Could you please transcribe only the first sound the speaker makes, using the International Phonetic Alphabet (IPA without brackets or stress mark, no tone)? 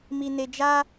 m